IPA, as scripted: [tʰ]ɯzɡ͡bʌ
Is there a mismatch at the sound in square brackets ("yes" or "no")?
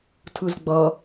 no